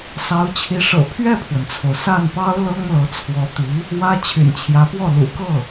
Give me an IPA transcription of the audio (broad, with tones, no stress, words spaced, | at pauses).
sɑ˧˥ʊ̯t͡ɕʰi˧˥ ʂɤ̰˨˩pʰɥɛ˥˩pʰwə˩nt͡sʰo˩ʊ̯ sa˥˩npɑ˥ʊ̯ lɤ˥ŋlɤ˧˥ t͡sʰwɔ˧˥t̪i˧˥ | wä˥ t͡ɕʰy̰˨˩nt͡ɕʰjä˧˥pwɔ˥˩ lṵ˨˩kɤ˥˩